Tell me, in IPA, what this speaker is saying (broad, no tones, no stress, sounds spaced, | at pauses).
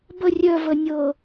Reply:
b ə rʲ œ v ə nʲ ɤ